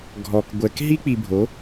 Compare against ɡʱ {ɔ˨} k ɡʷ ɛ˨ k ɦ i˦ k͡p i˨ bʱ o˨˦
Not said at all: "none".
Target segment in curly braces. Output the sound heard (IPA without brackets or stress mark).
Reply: ɔ˨